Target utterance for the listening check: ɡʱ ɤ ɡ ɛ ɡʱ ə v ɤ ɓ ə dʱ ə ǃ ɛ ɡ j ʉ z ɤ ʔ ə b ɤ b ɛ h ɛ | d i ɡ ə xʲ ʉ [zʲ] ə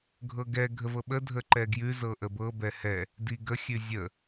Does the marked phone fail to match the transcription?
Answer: no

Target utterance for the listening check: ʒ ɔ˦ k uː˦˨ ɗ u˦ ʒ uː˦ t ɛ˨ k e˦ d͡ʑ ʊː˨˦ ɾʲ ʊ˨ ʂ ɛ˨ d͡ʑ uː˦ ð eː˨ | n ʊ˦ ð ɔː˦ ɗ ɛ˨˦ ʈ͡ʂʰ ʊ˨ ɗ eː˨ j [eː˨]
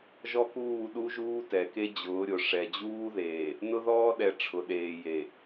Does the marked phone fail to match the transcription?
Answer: yes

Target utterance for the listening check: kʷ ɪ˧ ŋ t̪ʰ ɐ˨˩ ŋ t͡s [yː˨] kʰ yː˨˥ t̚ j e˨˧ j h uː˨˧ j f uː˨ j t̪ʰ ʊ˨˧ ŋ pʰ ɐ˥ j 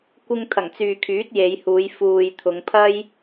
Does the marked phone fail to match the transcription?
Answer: no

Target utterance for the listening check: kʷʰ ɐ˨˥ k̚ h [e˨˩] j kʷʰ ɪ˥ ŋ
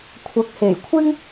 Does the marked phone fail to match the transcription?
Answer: no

